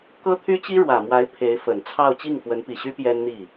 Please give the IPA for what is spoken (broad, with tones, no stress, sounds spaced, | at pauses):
k ɤ˥ t̪ʰ y˥ t͡ɕ i˥ ɻ w ä˨˩ m w a˧˥ ɪ̯ pʰ e˧˥ ɪ̯ f ə˨˩ n t͡sʰ ɑ˥˧ ʊ̯ t͡ɕ i˥˩ ŋ f w ə˧˥ n p i˨˩ ɕ y˥ p j ɛ˥ n n̪ i˥˩